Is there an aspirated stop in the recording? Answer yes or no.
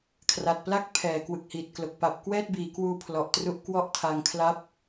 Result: yes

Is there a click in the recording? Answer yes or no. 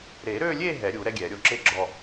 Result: yes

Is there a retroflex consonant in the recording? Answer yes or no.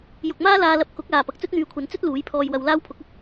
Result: no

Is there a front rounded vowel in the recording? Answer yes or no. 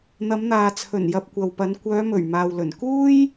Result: yes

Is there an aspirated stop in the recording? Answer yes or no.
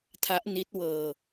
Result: yes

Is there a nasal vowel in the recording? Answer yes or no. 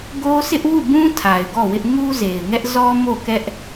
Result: yes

